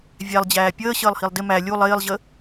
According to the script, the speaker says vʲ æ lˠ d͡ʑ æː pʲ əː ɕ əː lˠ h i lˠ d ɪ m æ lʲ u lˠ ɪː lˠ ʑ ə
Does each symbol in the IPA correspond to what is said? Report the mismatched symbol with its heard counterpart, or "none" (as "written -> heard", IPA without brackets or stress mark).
none